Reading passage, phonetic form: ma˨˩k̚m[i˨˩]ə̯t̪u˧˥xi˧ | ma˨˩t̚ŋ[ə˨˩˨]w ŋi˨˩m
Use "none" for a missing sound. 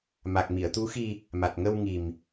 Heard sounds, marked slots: i˨˩˨, ə˧

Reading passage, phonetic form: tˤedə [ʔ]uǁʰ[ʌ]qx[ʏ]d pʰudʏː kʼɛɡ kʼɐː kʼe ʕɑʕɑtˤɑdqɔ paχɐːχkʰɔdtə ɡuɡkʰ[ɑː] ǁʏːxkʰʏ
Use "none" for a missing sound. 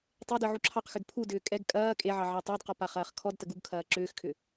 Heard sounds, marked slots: ʕ, ɑ, ʏ, ɐː

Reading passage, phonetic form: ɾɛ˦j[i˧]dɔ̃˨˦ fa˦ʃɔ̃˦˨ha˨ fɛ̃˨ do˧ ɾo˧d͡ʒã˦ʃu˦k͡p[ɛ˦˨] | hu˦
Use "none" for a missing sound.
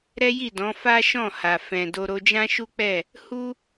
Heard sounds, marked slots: i˦˨, ɛ˦˨

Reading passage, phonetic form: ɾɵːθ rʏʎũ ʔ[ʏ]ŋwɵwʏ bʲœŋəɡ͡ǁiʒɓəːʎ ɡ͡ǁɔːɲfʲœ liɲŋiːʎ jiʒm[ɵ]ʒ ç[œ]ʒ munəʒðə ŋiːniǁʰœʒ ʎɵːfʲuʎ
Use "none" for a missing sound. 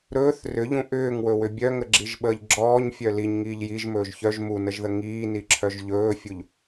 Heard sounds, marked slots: ʏː, ɵː, œ

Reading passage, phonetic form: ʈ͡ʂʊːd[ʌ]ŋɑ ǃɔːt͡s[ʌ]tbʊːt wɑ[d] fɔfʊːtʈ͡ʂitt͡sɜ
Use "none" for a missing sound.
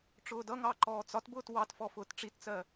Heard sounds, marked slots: ʌ, ɒ, t

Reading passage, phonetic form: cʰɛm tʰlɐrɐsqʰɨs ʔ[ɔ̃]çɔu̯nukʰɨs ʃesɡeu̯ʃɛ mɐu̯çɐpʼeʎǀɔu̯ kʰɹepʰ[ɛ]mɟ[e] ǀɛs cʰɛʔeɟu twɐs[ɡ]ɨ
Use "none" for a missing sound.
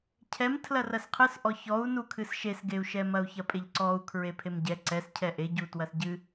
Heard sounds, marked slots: ɔ, e, ɛ, ɟ

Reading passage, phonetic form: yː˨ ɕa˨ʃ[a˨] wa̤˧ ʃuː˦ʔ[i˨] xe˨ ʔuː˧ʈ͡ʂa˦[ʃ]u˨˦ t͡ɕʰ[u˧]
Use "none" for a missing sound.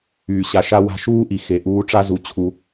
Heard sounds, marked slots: a˧, i˨, z, u˧

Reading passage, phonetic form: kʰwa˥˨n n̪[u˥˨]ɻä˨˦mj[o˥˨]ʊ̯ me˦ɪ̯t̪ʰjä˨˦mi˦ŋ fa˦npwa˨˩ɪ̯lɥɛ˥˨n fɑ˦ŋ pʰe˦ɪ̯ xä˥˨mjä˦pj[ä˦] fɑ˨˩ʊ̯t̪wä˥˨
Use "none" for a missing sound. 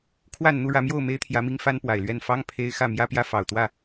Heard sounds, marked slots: u˥˨, o˥˨, ä˦

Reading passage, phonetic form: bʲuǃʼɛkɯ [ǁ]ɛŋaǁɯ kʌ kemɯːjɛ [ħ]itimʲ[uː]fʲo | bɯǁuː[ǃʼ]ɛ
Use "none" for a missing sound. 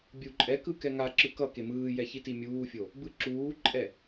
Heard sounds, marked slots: k, ç, uː, ǃʼ

